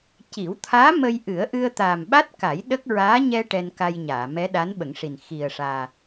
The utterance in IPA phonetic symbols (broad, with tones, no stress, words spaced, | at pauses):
ci˨˩˦wt̪ʰaː˧˥ mə˧jʔɨ˨˩˦ə̯ʔɨ˧ə̯ t̪aː˨˩mɓa˦˥t̚ka˨˩˦j ɗə˦˥k̚ ɹaː˧˥ɲɛ˧ ʈɛ˧nka˧jɲaː˨˩˨ mɛ˧˥ ɗa˧˥nɓə˨˩˦ŋʂi˨˩n xi˨˩ə̯ʂaː˨˩